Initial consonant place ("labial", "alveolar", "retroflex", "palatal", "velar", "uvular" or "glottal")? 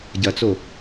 palatal